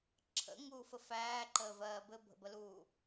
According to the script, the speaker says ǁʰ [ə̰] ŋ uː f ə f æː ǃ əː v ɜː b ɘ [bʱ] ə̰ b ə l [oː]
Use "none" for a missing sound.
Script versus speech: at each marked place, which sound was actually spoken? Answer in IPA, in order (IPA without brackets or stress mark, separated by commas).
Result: ə̰, bʱ, uː